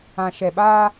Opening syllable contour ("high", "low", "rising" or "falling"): low